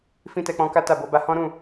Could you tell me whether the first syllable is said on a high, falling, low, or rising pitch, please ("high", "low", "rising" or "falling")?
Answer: high